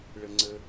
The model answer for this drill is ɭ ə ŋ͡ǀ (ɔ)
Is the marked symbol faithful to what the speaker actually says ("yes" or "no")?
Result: no